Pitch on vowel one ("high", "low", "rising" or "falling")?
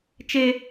high